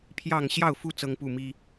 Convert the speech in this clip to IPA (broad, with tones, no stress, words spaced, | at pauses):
pʰjɑ˥˨ŋ ɕjɑ˥˨ʊ̯fu˦ t͡sɤ˦ŋpu˥˨mi˦